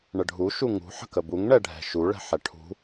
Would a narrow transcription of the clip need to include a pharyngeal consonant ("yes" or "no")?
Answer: yes